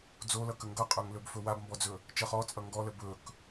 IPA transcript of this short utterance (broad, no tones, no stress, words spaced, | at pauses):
d͡zolʌkə ŋɡʌqʼɵŋlɵbfɵ wabmbɔd͡zɵ | t͡ʃʌχ ɔt͡sʼʌ ŋɡɔlə bɵk